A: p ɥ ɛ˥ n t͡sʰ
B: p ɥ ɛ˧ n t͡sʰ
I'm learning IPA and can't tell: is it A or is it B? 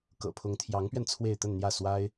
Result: B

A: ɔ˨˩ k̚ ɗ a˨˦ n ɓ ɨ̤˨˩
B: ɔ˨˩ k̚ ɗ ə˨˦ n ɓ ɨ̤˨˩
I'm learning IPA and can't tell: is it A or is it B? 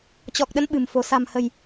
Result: B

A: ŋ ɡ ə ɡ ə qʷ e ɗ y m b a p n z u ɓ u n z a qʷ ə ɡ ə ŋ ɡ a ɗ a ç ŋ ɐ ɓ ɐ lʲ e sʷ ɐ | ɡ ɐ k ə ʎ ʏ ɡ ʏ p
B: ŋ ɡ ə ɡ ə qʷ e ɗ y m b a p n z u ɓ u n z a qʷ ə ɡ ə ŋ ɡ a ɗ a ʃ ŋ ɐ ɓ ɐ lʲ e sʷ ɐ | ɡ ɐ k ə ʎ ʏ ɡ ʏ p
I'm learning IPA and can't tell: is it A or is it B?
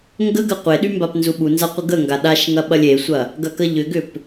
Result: B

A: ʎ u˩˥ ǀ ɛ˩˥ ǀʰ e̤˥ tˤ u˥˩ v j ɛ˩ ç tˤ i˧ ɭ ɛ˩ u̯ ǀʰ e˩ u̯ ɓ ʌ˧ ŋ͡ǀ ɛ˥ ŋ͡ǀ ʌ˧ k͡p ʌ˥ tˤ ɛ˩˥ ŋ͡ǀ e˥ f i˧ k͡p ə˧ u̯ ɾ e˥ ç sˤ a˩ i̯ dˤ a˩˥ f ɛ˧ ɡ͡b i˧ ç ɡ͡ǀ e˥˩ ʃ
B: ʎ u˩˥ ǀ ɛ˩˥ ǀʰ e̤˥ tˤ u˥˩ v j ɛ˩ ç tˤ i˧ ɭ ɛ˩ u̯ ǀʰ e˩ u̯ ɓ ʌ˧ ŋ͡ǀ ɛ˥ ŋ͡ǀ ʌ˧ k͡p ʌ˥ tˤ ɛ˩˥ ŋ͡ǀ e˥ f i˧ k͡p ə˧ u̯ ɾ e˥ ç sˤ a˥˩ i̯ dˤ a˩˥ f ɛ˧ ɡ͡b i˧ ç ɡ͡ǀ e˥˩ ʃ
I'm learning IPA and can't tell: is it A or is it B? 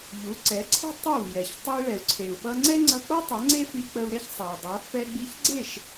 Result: A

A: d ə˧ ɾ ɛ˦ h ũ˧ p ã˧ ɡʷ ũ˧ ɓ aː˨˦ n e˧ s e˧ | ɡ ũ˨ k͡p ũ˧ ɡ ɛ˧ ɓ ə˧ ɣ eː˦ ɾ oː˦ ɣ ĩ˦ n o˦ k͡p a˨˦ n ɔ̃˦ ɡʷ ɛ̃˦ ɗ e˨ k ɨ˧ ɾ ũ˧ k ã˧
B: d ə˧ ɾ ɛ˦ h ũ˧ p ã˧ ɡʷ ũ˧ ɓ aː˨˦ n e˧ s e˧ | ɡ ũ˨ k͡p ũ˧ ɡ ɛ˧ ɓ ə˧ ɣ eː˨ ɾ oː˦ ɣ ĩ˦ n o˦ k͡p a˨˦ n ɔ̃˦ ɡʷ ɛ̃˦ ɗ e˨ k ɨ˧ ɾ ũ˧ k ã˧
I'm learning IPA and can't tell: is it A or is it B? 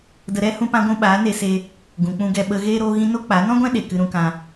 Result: A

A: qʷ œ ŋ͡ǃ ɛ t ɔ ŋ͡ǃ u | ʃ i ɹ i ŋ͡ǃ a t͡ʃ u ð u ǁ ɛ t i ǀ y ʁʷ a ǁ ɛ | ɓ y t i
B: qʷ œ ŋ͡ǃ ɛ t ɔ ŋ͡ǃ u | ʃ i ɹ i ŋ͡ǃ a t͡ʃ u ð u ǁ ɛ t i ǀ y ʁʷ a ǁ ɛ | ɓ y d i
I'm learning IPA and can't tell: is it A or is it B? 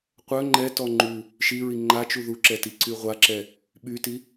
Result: A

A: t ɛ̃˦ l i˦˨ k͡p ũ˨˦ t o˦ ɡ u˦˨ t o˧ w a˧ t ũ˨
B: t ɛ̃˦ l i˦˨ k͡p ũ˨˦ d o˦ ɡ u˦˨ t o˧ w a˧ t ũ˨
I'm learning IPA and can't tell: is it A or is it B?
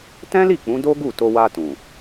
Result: B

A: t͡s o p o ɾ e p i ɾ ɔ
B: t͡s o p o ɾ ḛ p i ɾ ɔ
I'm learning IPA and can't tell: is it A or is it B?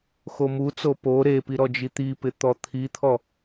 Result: A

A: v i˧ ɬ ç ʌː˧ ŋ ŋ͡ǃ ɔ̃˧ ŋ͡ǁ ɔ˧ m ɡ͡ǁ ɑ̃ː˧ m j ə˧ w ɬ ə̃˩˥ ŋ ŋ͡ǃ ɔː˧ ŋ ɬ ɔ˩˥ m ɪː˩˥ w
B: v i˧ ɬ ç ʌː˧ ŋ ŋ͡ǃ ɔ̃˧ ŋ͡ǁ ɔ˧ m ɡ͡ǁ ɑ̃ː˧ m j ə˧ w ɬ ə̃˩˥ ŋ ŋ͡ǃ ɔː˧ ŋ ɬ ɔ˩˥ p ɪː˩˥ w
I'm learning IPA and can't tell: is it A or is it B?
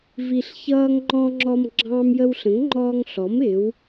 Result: A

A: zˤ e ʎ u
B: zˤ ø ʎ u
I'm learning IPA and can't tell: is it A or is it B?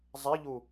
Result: A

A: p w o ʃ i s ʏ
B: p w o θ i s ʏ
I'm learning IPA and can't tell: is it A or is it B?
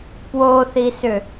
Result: B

